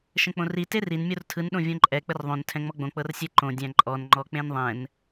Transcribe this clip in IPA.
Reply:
ʃ ə̃ k͡p õ r i t e r i n mʲ o r tʰ ɯ n ɗ õ vʲ õ ǃʼ ɛ k͡p ə r ðˤ õ n tʰ ɛ̃ ŋ͡m ɔ ɡ͡b õ k͡p ɤ r sʲ ɛ ǃ õ dʲ æ̃ ǃʼ ɔ n ŋ͡ǃ ɔ k͡p ẽ n ðˤ ɛ̃ n

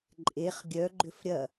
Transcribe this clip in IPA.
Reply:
ǃʼ e χ ɡʲ œ ɡ͡ǃ ʏ f ɾʲ ɐ

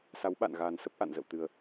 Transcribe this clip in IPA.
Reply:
s a˨˦ w ɓ a̰˧˨ n ɣ aː˨˩ n s ə˦˥ p̚ ʔ a̰˧˨ n z ə̰˧˨ w t̪ ɨ˨˩ ə̯

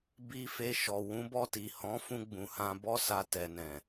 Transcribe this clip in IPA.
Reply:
b i˧ f e˧ ʃ ɔ˨ w ũ˨˦ b ɔ˧ t i˨ h ɔ̃˨˦ f ũ˧ ɡ͡b ũ˨ h ã˧ b ɔ˦ s a˧ t ɛ˨ n ɛ̃˨

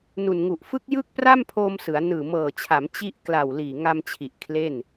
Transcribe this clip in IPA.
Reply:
n u˨˩ n ŋ u˨˩ ʔ f ɯ˦˥ k̚ j ɯ˥˩ k̚ p r a˥˩ m pʰ oː˧ m s ɯ˩˦ a̯ n ɯː˨˩ m ɤː˨˩ t͡ɕʰ a˩˦ m t͡ɕ i˥˩ ʔ k l a˨˩ w l iː˨˩ ŋ a˧ m t͡ɕʰ i˨˩ ʔ kʰ l e˥˩ n

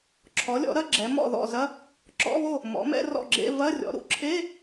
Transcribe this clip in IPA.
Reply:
ǁʰ ɔ˩˥ lʲ ɔ̰˩˥ ɾ ɐ˧˥˧ ɡ͡ǁ ɛ˩˥ m ɔ̰˥˩ ð ɔ̰˥˩ z ɐ˧˥˧ | ǁ ɔ̰˧˥˧ β o˥˩ | m ɔ̰˩˥ m ɛ̰˧˥˧ r ɔ̰˥˩ ɡ͡ǁ ḛ˧˥˧ v ɐ˧˥˧ rʲ ɔ̰˩˥ ɾ ṵ˩˥ ǁʰ e˧˥˧

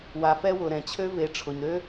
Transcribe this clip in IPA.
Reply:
w a˨ f ɛ˦ w ʊ˨ ɾ ɛ̃˨ t͡ɕʰ ø˦ v e˨˦ ʈ͡ʂʰ ʊ˨ ɲ ɾ ø˦

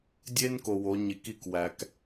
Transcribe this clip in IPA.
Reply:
dʲ e˦ n k o˨ w o˨˦ ɲ i˨ k i˦˨ k w æ˨ k

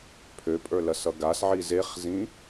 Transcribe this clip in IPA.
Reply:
pʰ ø pʼ ə˞ l ɐ s ʌ ɡ a s ʕ i z e χ z ĩ

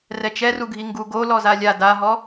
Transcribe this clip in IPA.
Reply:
r ɛ t͡ʃ ɛ r u ɡʱ i ŋ ɡ u ɡ o l ɔ z a lʲ a d a ɦ ɔ

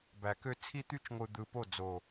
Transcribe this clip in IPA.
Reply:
b æ˨ k ø˦ t͡sʰ i˦ t̪ y˦ t͡ʃ ŋʷ ɯ˨ d̪ ɯ˨ p o˦˨ d͡z o˨

